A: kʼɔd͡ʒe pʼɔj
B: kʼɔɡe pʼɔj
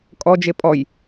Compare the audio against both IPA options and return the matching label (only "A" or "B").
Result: A